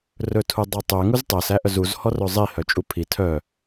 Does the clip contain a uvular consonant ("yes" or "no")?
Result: no